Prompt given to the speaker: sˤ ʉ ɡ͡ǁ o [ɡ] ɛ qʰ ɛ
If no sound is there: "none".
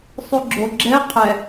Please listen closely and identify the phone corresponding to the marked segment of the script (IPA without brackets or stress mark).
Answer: ɡ͡ǁ